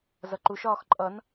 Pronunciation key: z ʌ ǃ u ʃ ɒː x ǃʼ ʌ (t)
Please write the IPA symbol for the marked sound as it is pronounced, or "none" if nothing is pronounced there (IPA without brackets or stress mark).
n